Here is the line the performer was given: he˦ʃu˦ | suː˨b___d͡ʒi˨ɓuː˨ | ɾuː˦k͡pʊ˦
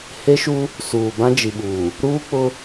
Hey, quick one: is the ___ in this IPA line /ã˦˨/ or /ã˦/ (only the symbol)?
ã˦